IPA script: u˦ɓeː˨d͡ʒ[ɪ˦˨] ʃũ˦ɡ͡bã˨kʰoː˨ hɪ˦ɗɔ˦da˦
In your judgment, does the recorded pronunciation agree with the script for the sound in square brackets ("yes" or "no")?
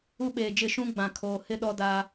yes